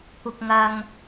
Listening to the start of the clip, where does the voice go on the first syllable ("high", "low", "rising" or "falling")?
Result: high